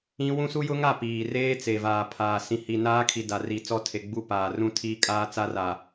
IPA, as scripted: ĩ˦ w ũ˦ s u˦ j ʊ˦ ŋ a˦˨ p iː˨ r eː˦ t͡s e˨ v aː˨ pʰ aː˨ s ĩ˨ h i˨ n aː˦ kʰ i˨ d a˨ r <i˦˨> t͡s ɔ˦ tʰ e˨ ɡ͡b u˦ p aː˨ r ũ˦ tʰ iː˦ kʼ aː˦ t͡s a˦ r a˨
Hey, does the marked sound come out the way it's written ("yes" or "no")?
no